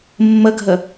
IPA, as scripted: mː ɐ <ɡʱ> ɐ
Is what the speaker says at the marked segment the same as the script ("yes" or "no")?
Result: yes